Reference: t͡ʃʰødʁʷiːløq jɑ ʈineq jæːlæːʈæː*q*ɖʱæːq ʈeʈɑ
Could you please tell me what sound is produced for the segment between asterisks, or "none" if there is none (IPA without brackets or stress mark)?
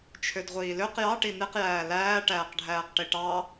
q